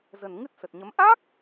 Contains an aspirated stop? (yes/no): no